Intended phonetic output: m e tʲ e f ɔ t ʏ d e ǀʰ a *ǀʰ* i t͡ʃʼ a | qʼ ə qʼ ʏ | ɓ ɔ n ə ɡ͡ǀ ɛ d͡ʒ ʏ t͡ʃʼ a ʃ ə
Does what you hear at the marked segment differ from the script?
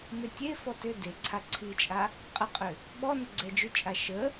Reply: no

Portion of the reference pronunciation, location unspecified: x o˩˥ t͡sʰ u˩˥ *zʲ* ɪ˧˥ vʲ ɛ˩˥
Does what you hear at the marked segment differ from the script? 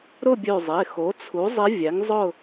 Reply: yes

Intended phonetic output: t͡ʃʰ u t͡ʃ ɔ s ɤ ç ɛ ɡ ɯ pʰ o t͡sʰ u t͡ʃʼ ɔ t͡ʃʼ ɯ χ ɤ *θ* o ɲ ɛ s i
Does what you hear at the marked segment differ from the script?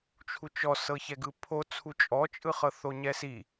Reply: no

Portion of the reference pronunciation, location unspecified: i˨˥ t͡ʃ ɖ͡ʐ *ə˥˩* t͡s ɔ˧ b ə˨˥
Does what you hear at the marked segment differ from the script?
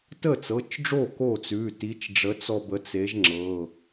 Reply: yes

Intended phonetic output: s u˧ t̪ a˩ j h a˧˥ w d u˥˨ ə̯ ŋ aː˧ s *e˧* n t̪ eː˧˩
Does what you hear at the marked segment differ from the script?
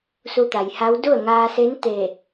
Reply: yes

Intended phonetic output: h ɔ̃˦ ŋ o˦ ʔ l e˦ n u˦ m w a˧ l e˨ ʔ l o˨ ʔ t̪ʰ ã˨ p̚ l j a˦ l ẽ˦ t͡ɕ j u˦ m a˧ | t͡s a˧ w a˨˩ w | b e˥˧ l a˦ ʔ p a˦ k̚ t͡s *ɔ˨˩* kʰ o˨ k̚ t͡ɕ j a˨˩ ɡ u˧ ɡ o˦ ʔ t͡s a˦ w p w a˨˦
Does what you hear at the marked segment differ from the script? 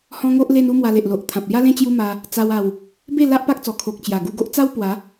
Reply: no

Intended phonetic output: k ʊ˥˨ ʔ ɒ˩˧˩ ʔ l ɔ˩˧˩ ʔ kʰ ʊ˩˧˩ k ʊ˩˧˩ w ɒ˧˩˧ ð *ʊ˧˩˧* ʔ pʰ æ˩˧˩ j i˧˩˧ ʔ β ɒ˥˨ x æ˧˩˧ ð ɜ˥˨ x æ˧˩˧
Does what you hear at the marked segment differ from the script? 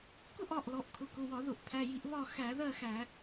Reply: no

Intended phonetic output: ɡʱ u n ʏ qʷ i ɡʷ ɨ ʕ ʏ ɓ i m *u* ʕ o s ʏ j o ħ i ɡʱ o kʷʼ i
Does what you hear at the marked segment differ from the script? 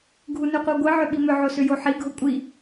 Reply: yes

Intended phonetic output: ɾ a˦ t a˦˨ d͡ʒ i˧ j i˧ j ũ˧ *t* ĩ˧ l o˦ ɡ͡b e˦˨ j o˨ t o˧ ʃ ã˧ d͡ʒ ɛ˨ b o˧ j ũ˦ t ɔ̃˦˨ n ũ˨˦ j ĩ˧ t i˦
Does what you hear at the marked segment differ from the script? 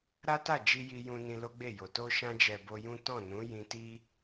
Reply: yes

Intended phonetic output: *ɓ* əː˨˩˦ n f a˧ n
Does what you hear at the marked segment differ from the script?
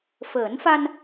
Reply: yes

